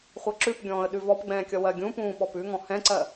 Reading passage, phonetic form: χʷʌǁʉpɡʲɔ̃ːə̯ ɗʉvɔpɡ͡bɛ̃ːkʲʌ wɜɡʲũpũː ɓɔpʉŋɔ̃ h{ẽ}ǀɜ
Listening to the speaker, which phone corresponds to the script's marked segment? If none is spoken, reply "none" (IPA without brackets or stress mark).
ɛ̃